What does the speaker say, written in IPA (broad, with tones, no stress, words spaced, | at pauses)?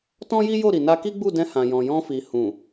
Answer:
tɔ̃˦ji˦jo˦˨ɾi˨ na˧ki˦ɡ͡bu˦˨dɛ̃˧ hã˨jɔ̃˨jɔ̃˧fi˨ hũ˨